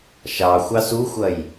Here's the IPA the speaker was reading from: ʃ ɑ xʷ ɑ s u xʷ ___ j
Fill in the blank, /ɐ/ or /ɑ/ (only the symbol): ɐ